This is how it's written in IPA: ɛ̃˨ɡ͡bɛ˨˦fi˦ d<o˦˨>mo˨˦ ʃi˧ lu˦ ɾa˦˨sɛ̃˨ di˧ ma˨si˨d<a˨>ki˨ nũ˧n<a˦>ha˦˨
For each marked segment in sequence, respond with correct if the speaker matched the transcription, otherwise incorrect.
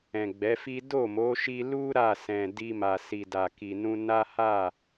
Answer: correct, correct, correct

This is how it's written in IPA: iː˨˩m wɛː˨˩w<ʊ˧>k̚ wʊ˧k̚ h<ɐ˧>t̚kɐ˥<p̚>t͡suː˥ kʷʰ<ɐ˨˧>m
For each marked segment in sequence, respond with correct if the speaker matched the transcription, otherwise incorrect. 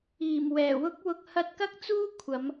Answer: incorrect: ʊ˥, correct, incorrect: k̚, correct

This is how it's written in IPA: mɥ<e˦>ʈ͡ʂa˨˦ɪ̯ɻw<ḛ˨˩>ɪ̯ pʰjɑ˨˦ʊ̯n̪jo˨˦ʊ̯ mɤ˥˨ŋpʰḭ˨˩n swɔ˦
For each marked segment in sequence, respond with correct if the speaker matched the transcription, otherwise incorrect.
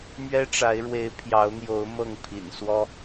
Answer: incorrect: ɛ˦, incorrect: e˨˦

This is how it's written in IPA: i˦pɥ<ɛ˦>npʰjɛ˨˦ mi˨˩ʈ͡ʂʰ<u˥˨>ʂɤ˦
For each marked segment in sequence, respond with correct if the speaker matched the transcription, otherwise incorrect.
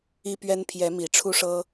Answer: correct, incorrect: u˦

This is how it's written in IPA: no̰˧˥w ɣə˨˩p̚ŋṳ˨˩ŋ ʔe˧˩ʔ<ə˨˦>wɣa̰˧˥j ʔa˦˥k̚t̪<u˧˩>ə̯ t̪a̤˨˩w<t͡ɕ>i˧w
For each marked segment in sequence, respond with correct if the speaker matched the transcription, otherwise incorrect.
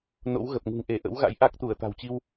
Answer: incorrect: ə̰˧˥, correct, correct

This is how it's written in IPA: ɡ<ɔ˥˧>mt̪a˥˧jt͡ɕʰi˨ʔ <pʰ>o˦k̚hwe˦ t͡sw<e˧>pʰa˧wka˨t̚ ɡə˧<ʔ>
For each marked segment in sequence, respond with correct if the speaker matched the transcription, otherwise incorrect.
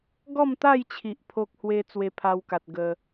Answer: correct, correct, correct, incorrect: none

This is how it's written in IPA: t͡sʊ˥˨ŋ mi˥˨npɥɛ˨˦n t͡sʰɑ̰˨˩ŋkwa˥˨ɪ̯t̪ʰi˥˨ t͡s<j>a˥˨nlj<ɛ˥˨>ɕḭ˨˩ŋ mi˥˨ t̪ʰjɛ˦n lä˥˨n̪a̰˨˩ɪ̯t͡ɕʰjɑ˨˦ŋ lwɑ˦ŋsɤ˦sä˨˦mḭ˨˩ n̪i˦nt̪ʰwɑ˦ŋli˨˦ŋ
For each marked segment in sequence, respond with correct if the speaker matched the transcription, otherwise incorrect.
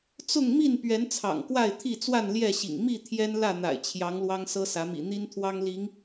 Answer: incorrect: w, correct

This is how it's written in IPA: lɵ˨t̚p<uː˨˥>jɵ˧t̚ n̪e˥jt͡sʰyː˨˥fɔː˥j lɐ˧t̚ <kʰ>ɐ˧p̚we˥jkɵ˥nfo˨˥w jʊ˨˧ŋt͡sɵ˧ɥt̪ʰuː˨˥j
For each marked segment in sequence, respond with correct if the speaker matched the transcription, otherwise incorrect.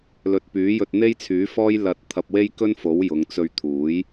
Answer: incorrect: yː˨˥, incorrect: t̪ʰ

